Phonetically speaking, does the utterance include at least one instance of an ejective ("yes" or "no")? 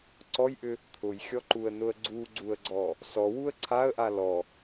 no